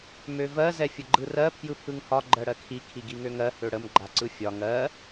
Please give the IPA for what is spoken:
m ø v ɜ z ɛ fʲ ə ɡ͡ǃ ɯ r ɜ pʰ j ɯ pʰ ɯ ŋ h ɒ ɡ͡ǃ ɜ ɽ ɜ kʰ i kʰ i ɡ i ŋ ø ŋ ɜ h ø ɽ ə m ɡ͡ǃ a ǀ ɯ fʲ ɒ ŋ ɜ

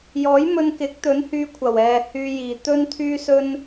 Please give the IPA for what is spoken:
j ɔː˨˥ j m ɵ˧ n k ɪ˨˥ k̚ t̪ ɵ˨˥ n h yː˧ kʷʰ ɐ˨˩ w ɛː˨ h yː˧ j iː˨˩ t̪ ɵ˧ n t̪ʰ yː˥ s ɵ˥ n

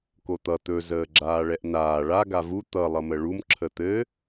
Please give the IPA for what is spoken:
k o t̪ ʌ t̪ ɵ z əː ɡ͡ǁ aː ɭ ɛ ʔ n aː ɭ a ɡ a v u t̪ ʌ lˠ ʌ m ə ɭ u m ǁʰ ə t̪ ɘ

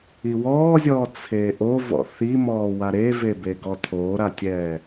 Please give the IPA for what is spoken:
i w ɔː zʲ ɔː t͡sʰ e ʔ o v ɔ̰ θ i m ɔː w a ɾ e v e b e ɡ ɔ tʰ oː ɾ a tʲ ɛː

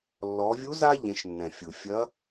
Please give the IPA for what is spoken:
lː ɔ˩˧ vʲ u˧˥ z a˥ ʎ ẽ˩˧ ʃ nː ɛ̃˩ fʲ u˩ fʲ ɐ˧˥

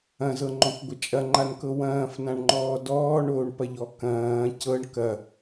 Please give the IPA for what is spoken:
ɐ̃ z ɤ ŋ͡ǃ ɔ̃ kʷ ɡʷ ɐ t͡ʃʼ ɐ ŋ͡ǃ a n k ɤ w ɐ̃ː f n ã ɳ ŋ͡ǃ ɔː d ɔː ɳ oː ɳ p ɐ ʎ ɔ k ɐ̃ː c ɤ ɳ k ɐ

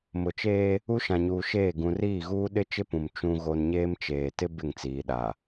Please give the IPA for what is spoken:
m ʊ˨ t͡ʃ eː˦ | u˦ ʃ ã˨ ɲ uː˨ ʃ eː˦˨ ɡ ũ˨ r iː˦˨ ɣ uː˦ ɗ ɪ˦ t͡ʃ ɪ˦ p ũ˨ m t͡ʃ ũ˦ ɣ o˦ n ɲ eː˦ m t͡ʃ eː˨ t ɪ˦ b ɪ˦˨ ŋ t͡s iː˨ ɗ a˨

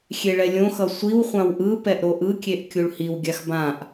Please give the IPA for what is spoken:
xʲ e ɭ ɛ lʲ õ x ʌ sʷ i w χʷ ã w ʔ ɯ p ɛ ʔ ɾ o ʔ ɯ kʲ e ʔ kʲ u ɭ h i w ɡʲ a x b ã ʔ

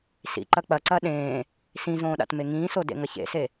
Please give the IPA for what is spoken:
s ḭ ǃ ɐ k͡p ɐ ǀ ɐ ɗ ẽː | s ĩ z õː ɗ a̰ t m e ŋ ĩː s o d ḛ ŋ ɐ ç ḛ s e

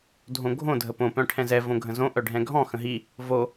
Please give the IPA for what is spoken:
dʱ õ ɡʱ õ dʱ ə p õ p œ̃ ʈʰ ɛ̃ z ɛ v õ ɡʱ ə̃ z õ ʔ œ ɖʱ ɛ̃ ɡʱ ɔ̃ x ə̃ ɦ i | v o

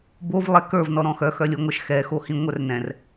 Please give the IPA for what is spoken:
b o v lˠ ɛ k ə˞ v n ɔ ɾ ɔ̃ x œ x œ lʲ o ŋʷ ɜ ʃ x ɛ x o h ĩ ŋʷ œ r n ɛ̃ r

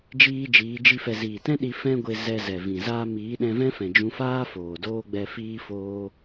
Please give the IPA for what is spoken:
d͡ʒ iː˦ d͡ʒ iː˨˦ d͡ʒ i˦ f ɛ˧ z iː˨ t ɛ̃˦ ɗ i˧ f ɛ̃˦ ɡʷ e˧ z ɛ˧ z ɛ˨ v ĩ˨ z aː˦ m iː˨˦ ɗ ɛ̃˧ v ɛ̃˦ f ɛ̃˨ d͡ʒ ũ˧ f aː˦ f oː˨ d oː˦ ɡ͡b ɛ˧ f iː˧ f oː˧

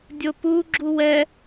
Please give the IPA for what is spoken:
dʲ o p u ɡ͡ǁ u w ɛ

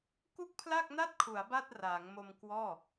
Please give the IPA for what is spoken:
k u˥˩ k̚ pʰ l a˥˩ k̚ n a˥˩ t̚ kʰ u˩˦ a̯ b a˥˩ t̚ r aː˩˦ ŋ m o˧ m k w ɔː˥˩

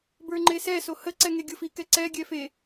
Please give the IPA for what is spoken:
b ə˞ ŋ͡ǃ e s ɛ s o h ə ǀ ɛ ŋ e ɡʲ ɤ f i k ɛ ǀ ɛ ɡʲ ɛ f e

